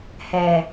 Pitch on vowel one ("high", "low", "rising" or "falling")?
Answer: low